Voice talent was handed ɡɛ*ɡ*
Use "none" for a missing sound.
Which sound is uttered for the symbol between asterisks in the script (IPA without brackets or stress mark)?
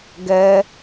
none